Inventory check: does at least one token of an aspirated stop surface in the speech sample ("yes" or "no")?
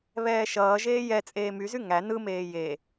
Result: no